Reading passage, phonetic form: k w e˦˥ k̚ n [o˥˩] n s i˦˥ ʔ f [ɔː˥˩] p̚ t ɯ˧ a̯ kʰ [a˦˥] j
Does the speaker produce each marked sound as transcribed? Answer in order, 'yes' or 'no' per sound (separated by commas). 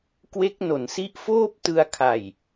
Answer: no, no, no